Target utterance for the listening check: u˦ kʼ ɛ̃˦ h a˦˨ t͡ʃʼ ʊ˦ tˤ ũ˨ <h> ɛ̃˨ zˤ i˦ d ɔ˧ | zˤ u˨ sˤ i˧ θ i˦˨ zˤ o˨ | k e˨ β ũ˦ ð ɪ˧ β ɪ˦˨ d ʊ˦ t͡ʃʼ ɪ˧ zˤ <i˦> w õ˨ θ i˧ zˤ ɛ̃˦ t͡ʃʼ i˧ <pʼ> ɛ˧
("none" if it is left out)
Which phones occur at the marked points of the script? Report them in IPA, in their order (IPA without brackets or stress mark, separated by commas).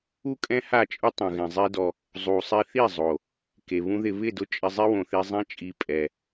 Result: ɣ, i˦, pʼ